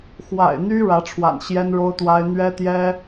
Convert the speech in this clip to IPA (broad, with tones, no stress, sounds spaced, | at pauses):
x w a̰˨˩ ɪ̯ n̪ y˥ ɻ ä˧˥ ʈ͡ʂʰ w a̰˨˩ n ɕ j ɛ˥ n ɻ o˥ ʊ̯ t̪ w a˥ ɪ̯ n̪ ɥ ɛ˥ t̪ j ɛ˥